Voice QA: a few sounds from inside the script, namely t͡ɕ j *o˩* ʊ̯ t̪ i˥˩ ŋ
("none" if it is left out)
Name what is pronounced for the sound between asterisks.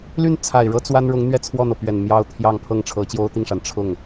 o˥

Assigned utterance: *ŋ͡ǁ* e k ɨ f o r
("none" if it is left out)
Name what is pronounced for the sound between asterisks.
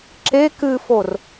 ǁ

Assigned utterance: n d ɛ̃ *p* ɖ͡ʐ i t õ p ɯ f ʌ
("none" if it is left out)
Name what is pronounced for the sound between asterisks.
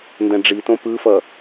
none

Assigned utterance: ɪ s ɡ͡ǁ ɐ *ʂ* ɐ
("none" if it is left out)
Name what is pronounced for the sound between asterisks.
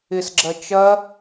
t͡ʃ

